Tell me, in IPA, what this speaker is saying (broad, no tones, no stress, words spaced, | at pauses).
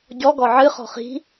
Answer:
ɟɔ ɡɔʕɨ χɔ̤χi̤